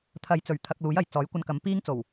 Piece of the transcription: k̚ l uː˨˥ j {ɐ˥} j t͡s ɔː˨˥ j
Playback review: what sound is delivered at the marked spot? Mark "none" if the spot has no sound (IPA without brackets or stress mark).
ɐ˨